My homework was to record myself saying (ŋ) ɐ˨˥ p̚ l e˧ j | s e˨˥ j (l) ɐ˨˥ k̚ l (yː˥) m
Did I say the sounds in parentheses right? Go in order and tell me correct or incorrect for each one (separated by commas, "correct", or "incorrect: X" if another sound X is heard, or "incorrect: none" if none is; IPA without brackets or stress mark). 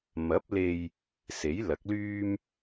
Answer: incorrect: m, correct, correct